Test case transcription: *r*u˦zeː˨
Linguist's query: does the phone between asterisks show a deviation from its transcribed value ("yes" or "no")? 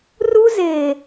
no